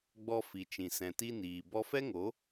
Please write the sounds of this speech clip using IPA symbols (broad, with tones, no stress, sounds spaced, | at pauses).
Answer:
ɡ͡b ɔ˧ f i˨ t͡ʃ ĩ˨ s ɛ̃˨ t i˧ n iː˨ b ɔ˧ f ɛ˦ ŋ o˨˦